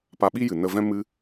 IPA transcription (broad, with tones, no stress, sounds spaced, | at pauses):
p a˧ ɓ i˦ j ɨ˨ n ə˧ v ɛ̃˦ m ɨ˦